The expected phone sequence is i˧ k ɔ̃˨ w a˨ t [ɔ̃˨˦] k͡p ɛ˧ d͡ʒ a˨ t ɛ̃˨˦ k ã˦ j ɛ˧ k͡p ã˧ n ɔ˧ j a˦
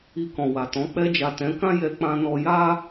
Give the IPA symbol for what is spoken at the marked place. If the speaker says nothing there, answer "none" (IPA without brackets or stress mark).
ɔ̃˨˦